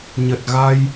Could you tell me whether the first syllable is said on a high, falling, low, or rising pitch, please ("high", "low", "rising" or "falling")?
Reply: low